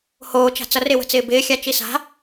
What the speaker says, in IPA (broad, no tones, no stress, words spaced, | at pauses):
hoːt͡ʃa̤ t͡sʌrɪwə̤t͡sɪː bɪːxʲa t͡ʃisa̤